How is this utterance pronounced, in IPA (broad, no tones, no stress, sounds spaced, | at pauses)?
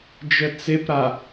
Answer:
d͡ʒ ə t͡s e p ɾ a